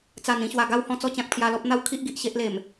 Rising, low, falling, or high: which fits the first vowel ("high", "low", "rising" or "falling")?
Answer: low